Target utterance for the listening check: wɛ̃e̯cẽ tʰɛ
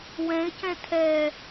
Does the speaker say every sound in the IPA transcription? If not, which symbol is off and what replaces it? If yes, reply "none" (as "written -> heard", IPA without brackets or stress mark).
ẽ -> ɛ̃